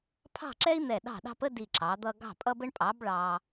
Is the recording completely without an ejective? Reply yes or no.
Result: no